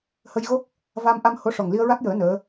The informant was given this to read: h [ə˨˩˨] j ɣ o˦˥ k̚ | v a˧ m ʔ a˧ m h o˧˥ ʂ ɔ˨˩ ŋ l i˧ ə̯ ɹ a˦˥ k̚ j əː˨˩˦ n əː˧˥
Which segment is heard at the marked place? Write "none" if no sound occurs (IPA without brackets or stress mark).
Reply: ə˧